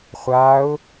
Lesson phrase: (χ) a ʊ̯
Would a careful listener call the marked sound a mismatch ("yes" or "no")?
yes